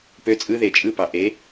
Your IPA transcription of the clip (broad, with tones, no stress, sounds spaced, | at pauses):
p ø˧˥ t͡sʼ ɯ˧˥ ð e˨˩˦ t͡ʃʼ ɯ˧˥ p ɑ˩ ʔ e˩˥